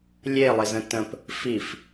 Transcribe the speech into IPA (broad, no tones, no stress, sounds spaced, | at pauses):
lʲ e lˠ ɪ z ə̃ t ə̃ p | f i f